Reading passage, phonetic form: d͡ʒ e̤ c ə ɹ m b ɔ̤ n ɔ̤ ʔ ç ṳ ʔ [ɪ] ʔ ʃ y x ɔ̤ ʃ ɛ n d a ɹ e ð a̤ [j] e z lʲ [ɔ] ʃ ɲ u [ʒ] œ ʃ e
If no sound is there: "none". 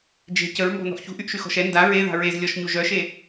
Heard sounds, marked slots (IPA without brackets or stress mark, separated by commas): y, ɹ, ɔ, ʒ